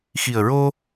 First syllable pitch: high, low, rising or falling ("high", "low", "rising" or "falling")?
low